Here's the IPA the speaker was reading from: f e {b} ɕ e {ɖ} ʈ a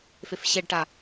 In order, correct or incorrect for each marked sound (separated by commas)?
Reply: incorrect, correct